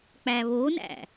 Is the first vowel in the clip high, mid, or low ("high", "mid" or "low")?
low